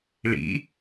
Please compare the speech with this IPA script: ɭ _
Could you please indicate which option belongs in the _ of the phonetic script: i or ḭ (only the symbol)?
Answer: ḭ